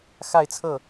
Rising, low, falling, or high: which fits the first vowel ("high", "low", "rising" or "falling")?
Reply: falling